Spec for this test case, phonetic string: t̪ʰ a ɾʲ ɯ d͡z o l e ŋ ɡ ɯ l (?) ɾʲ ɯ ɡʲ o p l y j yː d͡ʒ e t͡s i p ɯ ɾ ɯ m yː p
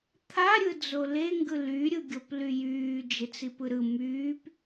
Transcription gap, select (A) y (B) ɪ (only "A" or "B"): A